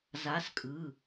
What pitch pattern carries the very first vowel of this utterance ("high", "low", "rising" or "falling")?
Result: rising